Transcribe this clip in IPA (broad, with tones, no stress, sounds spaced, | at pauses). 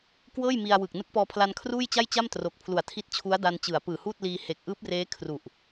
k w ɤː˥˩ j m i˧ a̯ w ɯ˨˩ k̚ n ɯ˦˥ k̚ p ɔː˧ pʰ l a˧ n kʰ r uː˥˩ j t͡ɕ a˥˩ j t͡ɕ a˥˩ m t r o˨˩ k̚ pʰ l u˨˩ a̯ tʰ i˦˥ t̚ t͡ɕʰ u˦˥ a̯ d a˧ n t͡ɕ ɯ˩˦ a̯ p ɯː˨˩ h uː˥˩ t̚ l iː˧ h e˨˩ k̚ ʔ ɯː˦˥ p̚ r eː˦˥ kʰ r u˨˩ ʔ